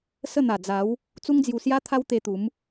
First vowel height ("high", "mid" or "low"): mid